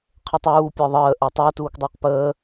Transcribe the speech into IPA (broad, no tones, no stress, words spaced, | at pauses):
qʰətˤuː pʲə˞ðˤəː ʔɜtˤɜ tuːkdˤʏːqpəː